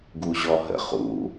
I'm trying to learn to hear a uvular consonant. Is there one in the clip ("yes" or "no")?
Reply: yes